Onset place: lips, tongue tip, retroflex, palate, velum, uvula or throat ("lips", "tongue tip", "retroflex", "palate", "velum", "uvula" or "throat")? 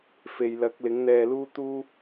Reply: lips